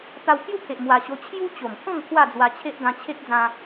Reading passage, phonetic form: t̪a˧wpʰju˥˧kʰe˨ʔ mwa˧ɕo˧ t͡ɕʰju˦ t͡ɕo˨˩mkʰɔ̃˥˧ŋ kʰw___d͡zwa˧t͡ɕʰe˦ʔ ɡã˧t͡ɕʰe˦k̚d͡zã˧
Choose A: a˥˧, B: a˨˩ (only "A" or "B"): A